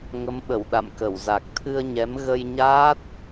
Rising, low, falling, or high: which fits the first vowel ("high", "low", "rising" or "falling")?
rising